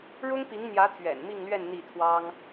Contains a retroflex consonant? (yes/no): yes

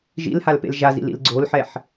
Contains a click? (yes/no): yes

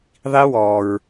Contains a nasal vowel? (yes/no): no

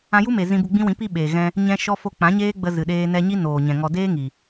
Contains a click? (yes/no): no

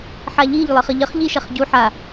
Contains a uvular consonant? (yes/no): yes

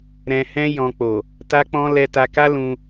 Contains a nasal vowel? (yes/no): yes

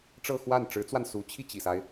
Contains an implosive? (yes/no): no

